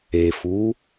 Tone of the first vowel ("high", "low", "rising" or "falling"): low